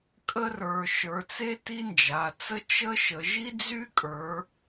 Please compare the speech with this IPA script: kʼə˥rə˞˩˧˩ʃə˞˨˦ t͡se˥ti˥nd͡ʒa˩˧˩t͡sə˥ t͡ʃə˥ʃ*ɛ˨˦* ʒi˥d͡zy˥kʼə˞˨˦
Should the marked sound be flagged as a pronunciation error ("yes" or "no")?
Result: yes